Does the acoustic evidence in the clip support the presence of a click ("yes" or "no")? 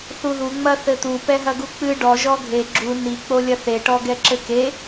yes